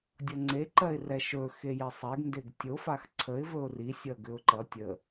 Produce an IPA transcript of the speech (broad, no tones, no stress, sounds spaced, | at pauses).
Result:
dʲ ʌ ŋ͡ǀ e ǃ ɜ ɪ̯ r ɛ ʃ ɵ x e j e sˤ e ɡ n d e ɡ tʲ o f a x ǀʰ ə ɪ̯ v ɵ ʊ̯ r i sʲ ʌ ɡ ʏ ʊ̯ ǃ ʌ tʲ ə